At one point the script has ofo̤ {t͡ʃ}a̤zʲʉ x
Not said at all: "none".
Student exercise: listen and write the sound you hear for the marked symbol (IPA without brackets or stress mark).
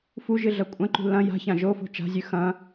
t͡ʃ